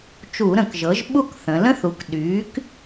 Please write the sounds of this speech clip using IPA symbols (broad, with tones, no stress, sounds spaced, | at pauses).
t͡ʃ u˧˩˧ ɾ ə̃˧˩˧ k ʒ ɤ˩˥ ʒ ɓ u˥˧ k θ ə̃˩˧ l ə̃˦˥ θ u˩˥ k ɗ yː˩˥ k